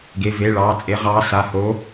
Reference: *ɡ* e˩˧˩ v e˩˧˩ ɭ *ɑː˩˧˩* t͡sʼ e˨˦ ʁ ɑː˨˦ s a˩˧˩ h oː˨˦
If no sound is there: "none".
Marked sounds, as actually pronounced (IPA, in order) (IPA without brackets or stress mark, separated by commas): ɡ, ɑː˩˧˩